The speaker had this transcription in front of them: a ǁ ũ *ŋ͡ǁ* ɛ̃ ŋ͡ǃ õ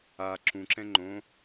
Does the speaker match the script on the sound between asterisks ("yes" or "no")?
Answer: no